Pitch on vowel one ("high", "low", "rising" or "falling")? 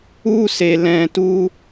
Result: high